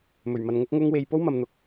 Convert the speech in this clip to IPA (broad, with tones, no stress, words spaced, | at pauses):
mɵ˨˩ɥmɐ˨n ŋʊ˥k̚ŋʊ˥ŋwe˧j po˥wmɐ˨mn̪ʊ˨k̚